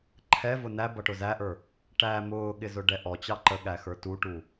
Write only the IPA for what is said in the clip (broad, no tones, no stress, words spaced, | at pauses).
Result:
ǃʰɛvʊ næ bʌʈʊzæʔə˞ | ʈæ mʊːɠɪzʊ ɖɛʔɔ t͡ɕɑǃəɠæ xə˞tuʈu